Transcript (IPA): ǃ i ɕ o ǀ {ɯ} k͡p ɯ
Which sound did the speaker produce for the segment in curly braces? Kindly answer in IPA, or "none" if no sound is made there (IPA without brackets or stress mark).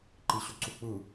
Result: u